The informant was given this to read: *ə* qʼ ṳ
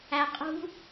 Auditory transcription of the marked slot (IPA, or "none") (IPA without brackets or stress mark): æ